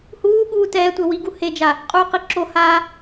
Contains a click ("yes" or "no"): yes